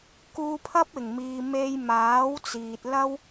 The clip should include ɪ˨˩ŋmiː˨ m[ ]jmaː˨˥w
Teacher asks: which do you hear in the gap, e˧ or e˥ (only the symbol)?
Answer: e˧